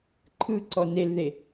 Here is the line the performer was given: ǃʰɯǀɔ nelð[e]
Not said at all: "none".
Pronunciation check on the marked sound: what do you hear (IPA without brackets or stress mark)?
e